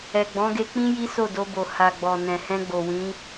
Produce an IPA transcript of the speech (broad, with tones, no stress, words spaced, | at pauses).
ɛ˨ɡ͡bɔ̃˨˦ɡe˧k͡pĩ˦ ji˦so˦˨do˧bo˨ ha˨ɡ͡bɔ˨nɛ̃˨hɛ̃˧ ɡ͡bo˨wĩ˨˦